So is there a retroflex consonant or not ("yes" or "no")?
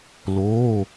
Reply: no